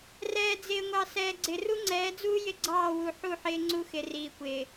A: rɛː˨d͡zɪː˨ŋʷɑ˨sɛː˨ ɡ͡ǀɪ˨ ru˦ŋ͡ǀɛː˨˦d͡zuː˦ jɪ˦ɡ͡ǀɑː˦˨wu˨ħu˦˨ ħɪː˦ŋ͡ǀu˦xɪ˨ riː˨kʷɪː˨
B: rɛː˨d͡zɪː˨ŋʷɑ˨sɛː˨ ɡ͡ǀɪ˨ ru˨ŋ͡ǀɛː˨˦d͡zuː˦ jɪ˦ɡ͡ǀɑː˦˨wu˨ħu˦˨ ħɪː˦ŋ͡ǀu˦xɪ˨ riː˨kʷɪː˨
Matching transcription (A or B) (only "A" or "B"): A